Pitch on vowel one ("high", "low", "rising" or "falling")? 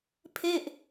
falling